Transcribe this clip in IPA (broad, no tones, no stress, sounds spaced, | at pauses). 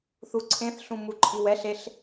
θ u ǀʰ ẽ θ ɬ ũ m u ǃʼ i w ɛ ɬ e ɬ